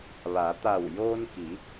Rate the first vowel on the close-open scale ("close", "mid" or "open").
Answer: open